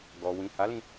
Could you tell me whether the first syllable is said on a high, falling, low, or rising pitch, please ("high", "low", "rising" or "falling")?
low